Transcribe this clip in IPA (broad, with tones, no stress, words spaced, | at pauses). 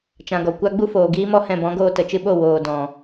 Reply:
t͡ʃã˨ɡɔ˨kʷa˦ ɡ͡bu˦foː˨ɡiː˦mɔ˦ hɛ̃˧bɔ̃˨˦ɡoː˧ tə˨t͡ʃɨ˧ɓo˦˨ woː˨dɔ̃˨